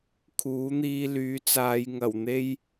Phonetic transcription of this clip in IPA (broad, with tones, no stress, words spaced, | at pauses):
kʰuː˨˥n̪iː˧ lyː˨˥t͡saː˨˧j ŋɐ˨˩w n̪e˧j